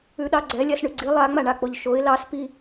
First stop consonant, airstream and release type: implosive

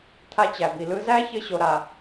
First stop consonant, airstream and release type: aspirated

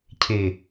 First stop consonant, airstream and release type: aspirated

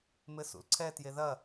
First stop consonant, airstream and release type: click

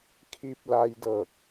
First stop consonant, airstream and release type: aspirated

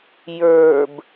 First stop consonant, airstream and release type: plain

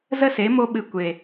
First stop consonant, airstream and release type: implosive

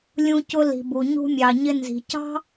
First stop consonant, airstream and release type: plain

